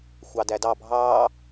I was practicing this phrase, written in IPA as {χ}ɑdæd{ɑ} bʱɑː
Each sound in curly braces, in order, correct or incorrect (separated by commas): incorrect, correct